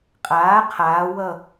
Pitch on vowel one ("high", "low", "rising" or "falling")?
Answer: rising